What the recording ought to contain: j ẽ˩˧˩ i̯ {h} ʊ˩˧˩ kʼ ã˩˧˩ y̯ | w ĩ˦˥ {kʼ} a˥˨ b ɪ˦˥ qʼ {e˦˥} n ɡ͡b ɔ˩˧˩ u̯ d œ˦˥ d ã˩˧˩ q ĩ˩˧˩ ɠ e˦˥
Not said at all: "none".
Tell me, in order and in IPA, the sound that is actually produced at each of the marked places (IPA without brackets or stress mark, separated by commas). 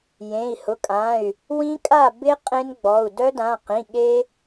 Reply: h, kʼ, ẽ˦˥